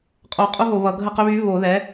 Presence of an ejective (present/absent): present